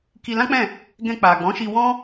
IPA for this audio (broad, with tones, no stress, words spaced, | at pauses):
ki˧lã˦k͡pɛ̃˦˨ | ɡɛ̃˧k͡pa˨ɡ͡bɔ̃˨˦ʃi˧ wɔ̃˦